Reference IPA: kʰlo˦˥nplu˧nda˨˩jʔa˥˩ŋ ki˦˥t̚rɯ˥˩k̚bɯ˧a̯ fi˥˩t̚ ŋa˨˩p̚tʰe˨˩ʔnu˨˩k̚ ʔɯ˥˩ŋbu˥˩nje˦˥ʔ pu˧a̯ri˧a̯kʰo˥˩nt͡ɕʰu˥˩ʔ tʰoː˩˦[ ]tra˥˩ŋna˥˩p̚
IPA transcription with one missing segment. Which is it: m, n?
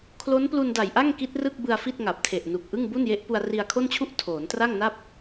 n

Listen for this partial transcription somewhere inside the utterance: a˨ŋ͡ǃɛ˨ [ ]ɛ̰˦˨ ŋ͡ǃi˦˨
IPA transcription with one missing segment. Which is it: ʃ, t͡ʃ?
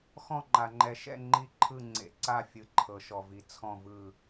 ʃ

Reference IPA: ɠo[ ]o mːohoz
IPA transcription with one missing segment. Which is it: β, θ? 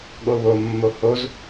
β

